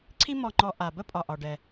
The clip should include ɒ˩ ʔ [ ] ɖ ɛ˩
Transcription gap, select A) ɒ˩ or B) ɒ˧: A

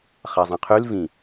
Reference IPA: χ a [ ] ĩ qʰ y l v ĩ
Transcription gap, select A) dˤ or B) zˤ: B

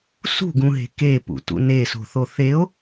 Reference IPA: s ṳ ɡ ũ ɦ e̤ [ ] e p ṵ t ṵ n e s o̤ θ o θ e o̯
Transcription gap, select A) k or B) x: A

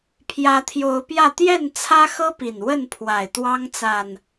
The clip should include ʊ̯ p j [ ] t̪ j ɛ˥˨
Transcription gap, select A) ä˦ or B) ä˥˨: B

